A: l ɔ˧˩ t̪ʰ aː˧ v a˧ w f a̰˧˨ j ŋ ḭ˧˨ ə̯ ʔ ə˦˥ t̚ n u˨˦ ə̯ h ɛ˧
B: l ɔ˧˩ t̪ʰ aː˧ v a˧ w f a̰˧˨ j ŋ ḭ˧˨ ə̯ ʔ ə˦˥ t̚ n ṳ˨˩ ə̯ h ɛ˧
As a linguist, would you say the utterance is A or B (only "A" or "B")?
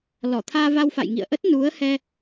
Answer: A